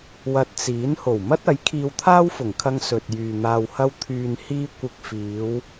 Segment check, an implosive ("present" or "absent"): absent